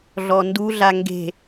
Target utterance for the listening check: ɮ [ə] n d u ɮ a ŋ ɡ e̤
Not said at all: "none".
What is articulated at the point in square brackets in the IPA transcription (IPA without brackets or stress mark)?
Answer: ɔ